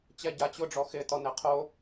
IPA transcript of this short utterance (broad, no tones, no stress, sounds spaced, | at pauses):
t͡ɕ ɛ ɟ a t͡ɕ ʊ ɖ͡ʐ ɔ x ɪ t ɔ n ɛ qʰ o